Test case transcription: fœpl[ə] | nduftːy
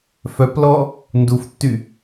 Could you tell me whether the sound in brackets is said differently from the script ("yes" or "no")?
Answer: yes